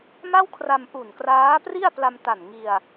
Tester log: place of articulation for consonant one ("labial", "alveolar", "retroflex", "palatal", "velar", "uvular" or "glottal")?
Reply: labial